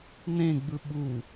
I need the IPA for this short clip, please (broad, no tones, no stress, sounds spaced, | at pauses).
n ẽ ɡ͡b ɯ ɓ u